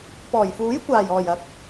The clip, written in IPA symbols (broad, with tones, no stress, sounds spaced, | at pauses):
p ɔː˨˩ j f uː˨˥ j kʷ aː˨˩ j ɔː˨˩ j ɐ˨˥ k̚